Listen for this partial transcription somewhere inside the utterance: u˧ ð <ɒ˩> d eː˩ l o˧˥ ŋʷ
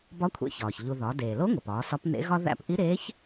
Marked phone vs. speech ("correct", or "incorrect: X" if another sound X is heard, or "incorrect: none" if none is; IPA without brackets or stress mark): incorrect: ɒ˩˧